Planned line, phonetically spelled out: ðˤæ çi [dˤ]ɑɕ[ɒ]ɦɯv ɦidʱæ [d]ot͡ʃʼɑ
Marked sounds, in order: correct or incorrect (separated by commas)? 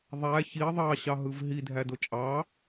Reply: incorrect, incorrect, correct